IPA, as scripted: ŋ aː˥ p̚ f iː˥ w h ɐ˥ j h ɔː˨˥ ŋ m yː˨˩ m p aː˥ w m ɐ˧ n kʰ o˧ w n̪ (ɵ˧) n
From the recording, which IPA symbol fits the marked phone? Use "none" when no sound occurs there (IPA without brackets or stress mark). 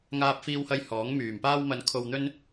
ɵ˥